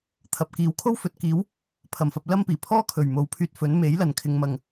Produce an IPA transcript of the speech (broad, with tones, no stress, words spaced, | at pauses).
t̪ʰɐ˨p̚kiː˨˧w kʰo˥wfɵ˨˥t̚kiː˨˥w | pʰɐ˨˩mfɐ˧p̚lɐ˥mpiː˨˩ pʰɔː˥kʰɵ˨˩ɥ mo˨˥wpʰyː˧t̚ fɵ˨˥n me˨˥jlɐ˨nkʰɪ˨˧ŋmɐ˨ŋ